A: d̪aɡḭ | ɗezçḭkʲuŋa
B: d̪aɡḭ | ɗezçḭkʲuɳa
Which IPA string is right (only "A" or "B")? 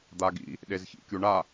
B